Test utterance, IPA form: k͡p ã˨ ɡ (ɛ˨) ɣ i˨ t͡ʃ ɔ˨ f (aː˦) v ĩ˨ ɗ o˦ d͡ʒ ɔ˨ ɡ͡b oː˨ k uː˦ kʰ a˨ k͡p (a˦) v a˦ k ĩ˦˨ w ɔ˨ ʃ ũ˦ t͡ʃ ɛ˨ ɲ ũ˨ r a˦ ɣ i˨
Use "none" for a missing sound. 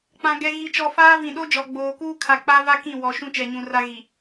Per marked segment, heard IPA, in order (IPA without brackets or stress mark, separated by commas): ɛ˨, aː˦, a˦